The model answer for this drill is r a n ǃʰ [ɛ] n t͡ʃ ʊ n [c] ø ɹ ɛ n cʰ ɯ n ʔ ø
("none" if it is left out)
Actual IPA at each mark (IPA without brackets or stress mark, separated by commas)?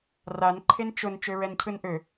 e, t͡ʃ